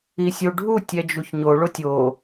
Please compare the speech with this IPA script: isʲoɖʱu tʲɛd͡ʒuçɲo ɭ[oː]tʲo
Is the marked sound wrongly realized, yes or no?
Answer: yes